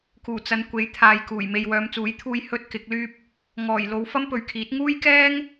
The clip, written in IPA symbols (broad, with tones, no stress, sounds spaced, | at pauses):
k uː˨˩ t͡s ɐ˨˧ n kʷ e˨˥ j t̪ʰ aː˨ j k uː˨˩ j m e˨ j w œː˨˧ m t͡s uː˨˥ j t̪ʰ uː˧ j h ɵ˥ t̚ k ɪ˨˥ k̚ l yː˥ p̚ | ŋ ɔː˨˩ j l o˨˧ w f ɐ˥ m p ɵ˨ ɥ kʰ iː˨˥ t̚ ŋ uː˥ j k ɛː˥ ŋ